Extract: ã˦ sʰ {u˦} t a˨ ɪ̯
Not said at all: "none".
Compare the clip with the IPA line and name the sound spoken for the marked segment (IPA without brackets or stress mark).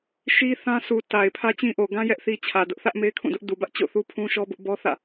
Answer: u˨